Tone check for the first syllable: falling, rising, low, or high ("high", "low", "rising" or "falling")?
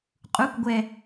rising